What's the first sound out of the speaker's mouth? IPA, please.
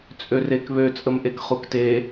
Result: t͡sʼ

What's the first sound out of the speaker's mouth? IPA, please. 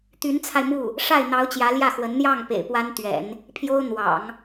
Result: t̪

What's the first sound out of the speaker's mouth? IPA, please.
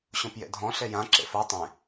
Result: ɕ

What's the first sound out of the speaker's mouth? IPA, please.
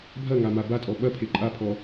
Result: bʱ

